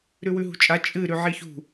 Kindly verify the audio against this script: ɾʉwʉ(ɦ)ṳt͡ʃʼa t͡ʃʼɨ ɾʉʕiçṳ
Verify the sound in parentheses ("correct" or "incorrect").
correct